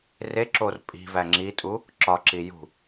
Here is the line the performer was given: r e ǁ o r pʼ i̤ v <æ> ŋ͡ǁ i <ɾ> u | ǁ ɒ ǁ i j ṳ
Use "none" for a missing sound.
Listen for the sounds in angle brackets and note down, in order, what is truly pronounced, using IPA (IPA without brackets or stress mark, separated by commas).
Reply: æ, tʼ